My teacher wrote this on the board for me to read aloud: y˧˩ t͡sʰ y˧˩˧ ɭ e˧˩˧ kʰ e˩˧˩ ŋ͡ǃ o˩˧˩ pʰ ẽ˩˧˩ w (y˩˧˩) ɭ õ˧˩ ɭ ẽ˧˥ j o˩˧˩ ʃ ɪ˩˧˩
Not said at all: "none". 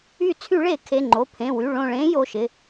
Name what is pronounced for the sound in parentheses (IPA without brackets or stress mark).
y˩˧˩